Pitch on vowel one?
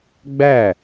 falling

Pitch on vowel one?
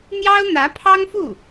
high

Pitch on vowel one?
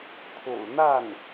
low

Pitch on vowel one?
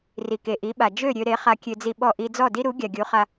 low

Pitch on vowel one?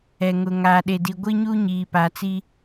low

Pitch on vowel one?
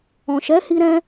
low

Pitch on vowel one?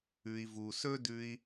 low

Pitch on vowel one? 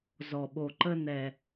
low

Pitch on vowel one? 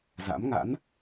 rising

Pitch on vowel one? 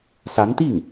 rising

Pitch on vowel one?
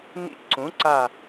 falling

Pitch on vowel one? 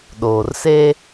low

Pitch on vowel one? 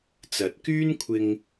rising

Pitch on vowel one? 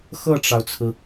falling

